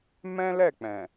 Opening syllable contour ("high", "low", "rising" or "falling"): high